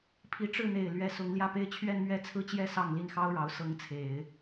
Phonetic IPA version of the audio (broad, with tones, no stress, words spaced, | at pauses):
pʰi˧˥ʈ͡ʂɻ̩˥˩n̪e˨˩ɪ̯ lɥɛ˧˥sʊ˧˥ŋ ljä˥˩pe˥ɪ̯ t͡ɕʰɥɛ˥˧nmɥɛ˥˧t͡sʰɹ̩˥˧t͡ɕjɛ˥˧ sɑ˥˧ŋli˥˩nxɑ˥ʊ̯ɻɑ˧˥ʊ̯ sɤ˧˥ŋt͡sʰe˨˩˦ɪ̯